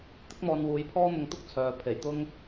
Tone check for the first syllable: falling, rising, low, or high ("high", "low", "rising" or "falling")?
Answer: high